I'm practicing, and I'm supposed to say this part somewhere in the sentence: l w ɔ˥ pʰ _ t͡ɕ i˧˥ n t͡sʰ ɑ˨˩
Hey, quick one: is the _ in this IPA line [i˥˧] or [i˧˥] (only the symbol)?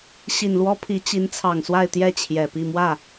i˧˥